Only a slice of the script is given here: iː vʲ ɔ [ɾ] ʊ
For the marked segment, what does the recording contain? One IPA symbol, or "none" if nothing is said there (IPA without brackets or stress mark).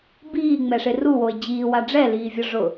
ʐ